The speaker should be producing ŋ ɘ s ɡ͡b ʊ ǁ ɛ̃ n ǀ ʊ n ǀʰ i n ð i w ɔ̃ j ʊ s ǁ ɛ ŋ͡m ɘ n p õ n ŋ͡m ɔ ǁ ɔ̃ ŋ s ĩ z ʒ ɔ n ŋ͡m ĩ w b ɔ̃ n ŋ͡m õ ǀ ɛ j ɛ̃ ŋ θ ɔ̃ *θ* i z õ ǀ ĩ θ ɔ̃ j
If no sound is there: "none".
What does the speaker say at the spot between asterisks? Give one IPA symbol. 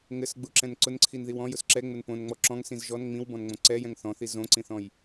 θ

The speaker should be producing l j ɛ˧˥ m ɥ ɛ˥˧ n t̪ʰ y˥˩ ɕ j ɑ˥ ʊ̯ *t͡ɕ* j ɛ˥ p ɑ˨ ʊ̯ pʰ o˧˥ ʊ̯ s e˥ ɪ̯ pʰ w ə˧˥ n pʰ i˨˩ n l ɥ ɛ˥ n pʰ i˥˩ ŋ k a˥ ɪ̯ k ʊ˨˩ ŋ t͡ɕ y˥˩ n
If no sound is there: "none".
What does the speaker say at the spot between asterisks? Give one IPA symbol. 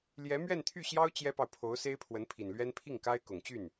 t͡ɕ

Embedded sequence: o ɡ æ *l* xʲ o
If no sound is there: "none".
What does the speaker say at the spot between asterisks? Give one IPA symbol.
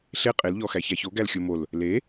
l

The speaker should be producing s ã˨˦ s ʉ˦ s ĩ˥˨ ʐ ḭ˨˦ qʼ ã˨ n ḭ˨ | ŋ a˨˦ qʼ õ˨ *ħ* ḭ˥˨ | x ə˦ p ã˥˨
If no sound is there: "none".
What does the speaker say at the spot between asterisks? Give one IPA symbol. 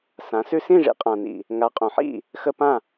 ħ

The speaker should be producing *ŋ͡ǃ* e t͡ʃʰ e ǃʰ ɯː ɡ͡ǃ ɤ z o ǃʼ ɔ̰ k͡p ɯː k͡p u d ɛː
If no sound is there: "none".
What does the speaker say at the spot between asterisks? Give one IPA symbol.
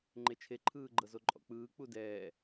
ŋ͡ǃ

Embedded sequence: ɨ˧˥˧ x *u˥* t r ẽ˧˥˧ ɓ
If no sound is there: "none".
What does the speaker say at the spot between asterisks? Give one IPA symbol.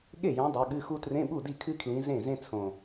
u˥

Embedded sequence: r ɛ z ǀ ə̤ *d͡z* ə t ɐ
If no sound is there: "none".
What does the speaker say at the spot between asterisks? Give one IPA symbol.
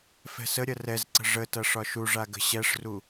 ʐ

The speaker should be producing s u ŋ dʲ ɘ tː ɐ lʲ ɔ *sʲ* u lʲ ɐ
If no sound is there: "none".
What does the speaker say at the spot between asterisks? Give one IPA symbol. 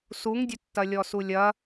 s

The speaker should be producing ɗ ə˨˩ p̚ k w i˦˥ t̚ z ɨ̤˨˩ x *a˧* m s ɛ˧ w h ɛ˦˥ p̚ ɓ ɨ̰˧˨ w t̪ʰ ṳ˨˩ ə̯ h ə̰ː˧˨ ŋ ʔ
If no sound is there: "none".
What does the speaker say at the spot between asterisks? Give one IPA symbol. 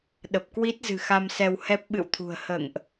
a˧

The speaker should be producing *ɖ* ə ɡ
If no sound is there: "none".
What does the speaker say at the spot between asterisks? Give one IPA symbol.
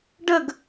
ɖ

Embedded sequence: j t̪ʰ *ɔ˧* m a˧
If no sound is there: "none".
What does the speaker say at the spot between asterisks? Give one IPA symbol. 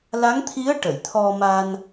ɔ˧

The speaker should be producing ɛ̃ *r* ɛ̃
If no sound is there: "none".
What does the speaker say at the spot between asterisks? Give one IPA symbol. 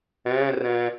r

